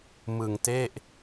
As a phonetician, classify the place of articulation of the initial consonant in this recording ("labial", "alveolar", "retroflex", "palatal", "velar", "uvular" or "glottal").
labial